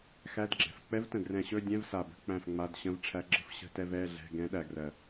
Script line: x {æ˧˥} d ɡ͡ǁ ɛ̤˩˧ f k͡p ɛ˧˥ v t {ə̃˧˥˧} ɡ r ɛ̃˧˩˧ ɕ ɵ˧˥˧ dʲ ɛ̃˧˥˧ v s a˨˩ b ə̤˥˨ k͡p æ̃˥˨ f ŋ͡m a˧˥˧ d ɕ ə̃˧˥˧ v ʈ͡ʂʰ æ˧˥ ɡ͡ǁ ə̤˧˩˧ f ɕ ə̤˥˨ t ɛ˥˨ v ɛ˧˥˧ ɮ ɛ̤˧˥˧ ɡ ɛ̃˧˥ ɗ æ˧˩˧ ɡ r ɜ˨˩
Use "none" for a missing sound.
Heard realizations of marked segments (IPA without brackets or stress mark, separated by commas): æ˧˥˧, ə̃˨˩